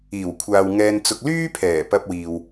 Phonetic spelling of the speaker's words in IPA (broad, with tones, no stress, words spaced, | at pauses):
iː˨˩wkʷʰaː˨w ŋɛː˧nt͡sʊ˧k̚ lyː˥pʰɛː˨˩ pɐ˧p̚wiː˨w